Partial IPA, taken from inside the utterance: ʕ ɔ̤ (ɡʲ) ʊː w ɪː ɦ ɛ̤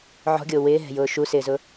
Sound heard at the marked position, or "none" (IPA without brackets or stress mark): ɡʲ